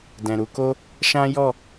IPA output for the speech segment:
d ɛ̃˨ ɾ u˧ k o˦ | ʃ ã˦ j ɔ˦˨

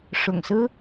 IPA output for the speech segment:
ʂ ʊ̰˨˩ ŋ s ɹ̩˦

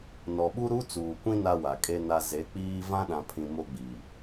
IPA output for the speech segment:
n ɔ˨ ɓ u˦ ɾ u˦ t͡s uː˨ kʷ ĩ˦ n a˦ w a˨ kʼ e˦ n a˨ z e˨˦ k͡p iː˦ v ã˦ ɗ ã˨ pʰ ĩ˨ m o˦ ɡ͡b i˨

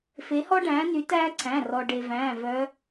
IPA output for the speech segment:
f e˨˦ h ɔ˦ ɖ æ̃ː˨˦ n y˨˦ t æː˦ ǀʰ æ̃˩˧˩ r ɔ˩ ɖ e˩ v æ̃ː˩˧˩ v œ˨˦

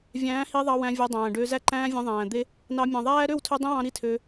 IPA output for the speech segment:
vʲ æ̃ː˨˦ h i˧ ðˤ ɑ˧ w æ̃˧ vʲ æ˧ dˤ æ̃ː˨ ɖ ø˧ z æ˦ ǃ æ̃ː˦ vʲ ẽ˧ ðˤ æ̃ː˨ d̪ e˦ | n ɑ˧ mʲ ɑ̃˨ ðˤ æː˦ ɾ ø˦˨ w tʰ ø˧ dˤ ẽ˦ w ɑ̃˧ ɾ i˦˨ tʰ ø˧

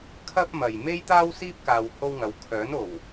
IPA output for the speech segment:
kʰ ɐ˥ p̚ m ɐ˨ j m e˥ j t̪ aː˥ w s iː˥ p̚ k aː˧ w h o˥ w ŋ ɐ˨˧ w kʰ œː˨˥ n o˨˩ w

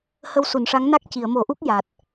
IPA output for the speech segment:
h ə˧ w s u˨˩˨ n ʂ a˧˥ ŋ n a˦˥ k̚ c i˨˩˨ ə̯ m o˨˩˦ ʔ u˦˥ k̚ j a˨˩ t̚

